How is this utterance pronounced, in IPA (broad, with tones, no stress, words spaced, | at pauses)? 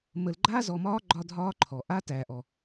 mə˨l ɡ͡ǃaː˦zɔ˨mɒː˦ ɡ͡ǃɒ˦dʱɒː˦ǃʰɔ˨ ʔaː˦tæː˨ʔɔ˨